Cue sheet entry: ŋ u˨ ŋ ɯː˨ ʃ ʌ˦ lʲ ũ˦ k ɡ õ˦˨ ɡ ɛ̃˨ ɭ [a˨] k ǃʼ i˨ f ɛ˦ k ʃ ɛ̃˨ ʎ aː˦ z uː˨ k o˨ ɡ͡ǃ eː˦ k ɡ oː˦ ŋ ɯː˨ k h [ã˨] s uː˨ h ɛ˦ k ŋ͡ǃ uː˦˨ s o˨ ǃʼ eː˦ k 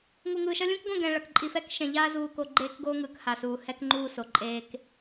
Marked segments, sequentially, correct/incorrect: incorrect: ʌ˨, incorrect: a˨

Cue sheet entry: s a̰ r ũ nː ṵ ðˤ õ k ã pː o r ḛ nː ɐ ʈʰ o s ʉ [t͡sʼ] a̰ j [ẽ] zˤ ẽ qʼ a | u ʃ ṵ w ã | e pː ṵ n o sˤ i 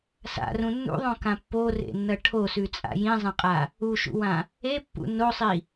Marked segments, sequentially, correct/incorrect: correct, incorrect: ĩ

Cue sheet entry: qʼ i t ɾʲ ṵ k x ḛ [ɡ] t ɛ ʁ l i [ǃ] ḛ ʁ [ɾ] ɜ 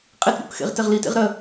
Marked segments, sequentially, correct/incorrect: incorrect: ʁ, incorrect: t, correct

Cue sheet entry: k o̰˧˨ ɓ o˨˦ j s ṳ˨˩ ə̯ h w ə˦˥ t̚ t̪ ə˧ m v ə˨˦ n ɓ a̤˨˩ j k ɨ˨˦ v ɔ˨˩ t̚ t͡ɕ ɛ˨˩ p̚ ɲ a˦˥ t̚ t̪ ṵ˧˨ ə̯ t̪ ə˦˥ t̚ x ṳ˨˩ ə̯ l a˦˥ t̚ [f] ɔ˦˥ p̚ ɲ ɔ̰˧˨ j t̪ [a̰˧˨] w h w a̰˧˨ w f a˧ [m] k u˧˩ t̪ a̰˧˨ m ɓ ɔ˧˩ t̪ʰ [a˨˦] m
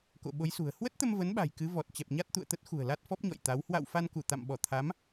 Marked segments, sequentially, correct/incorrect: correct, incorrect: a˨˦, incorrect: n, correct

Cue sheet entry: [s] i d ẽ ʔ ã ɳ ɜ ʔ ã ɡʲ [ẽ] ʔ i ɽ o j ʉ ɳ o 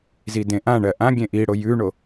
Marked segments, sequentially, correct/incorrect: incorrect: z, correct

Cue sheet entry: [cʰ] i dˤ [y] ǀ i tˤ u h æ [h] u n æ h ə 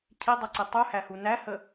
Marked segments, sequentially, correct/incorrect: correct, incorrect: u, correct

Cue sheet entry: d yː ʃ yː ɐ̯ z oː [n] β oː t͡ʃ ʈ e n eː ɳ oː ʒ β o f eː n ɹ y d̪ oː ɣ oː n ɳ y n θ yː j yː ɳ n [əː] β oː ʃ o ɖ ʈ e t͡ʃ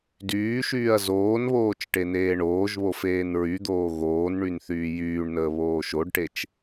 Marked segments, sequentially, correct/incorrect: correct, correct

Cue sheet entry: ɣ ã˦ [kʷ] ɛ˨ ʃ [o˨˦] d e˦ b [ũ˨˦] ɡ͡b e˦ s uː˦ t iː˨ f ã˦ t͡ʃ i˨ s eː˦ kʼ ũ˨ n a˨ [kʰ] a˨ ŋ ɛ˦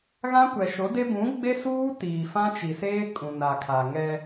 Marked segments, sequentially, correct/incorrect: correct, correct, correct, correct

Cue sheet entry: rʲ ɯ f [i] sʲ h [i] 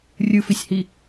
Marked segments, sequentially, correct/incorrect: correct, correct

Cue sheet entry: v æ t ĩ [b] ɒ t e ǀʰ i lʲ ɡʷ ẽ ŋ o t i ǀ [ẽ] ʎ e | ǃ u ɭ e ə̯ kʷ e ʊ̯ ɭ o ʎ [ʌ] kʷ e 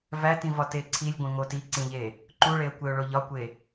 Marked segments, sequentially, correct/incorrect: incorrect: v, incorrect: ĩ, incorrect: ɒ

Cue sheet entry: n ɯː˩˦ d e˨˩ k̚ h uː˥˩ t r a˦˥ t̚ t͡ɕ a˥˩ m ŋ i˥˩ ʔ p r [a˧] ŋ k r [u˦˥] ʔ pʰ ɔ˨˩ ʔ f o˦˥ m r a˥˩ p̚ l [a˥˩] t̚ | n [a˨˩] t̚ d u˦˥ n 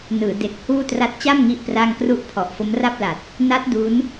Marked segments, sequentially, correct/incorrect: incorrect: a˥˩, correct, incorrect: a˨˩, incorrect: a˦˥

